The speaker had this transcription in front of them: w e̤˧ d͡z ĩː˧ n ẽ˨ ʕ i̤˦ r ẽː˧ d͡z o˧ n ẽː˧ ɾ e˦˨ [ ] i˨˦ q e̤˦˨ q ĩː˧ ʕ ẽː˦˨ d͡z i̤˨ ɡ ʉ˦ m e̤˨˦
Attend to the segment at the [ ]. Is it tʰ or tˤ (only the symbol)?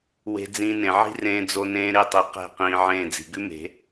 tˤ